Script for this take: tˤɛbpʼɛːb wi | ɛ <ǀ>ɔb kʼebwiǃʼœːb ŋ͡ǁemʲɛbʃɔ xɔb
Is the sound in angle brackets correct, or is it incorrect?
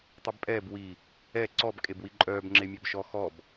correct